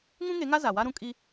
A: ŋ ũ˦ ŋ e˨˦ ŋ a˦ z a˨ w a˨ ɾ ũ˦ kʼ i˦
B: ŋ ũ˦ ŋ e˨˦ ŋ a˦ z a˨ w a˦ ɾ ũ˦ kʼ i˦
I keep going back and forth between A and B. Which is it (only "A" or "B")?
B